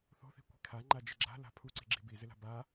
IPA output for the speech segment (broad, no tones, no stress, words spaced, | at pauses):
θo̤θi̤kʷi̤ kʰaŋ͡ǃad͡ʒɪ ɡ͡ǁa̤ la̤pʰuǀi̤ ɡ͡ǁi̤bi zɪla̤ba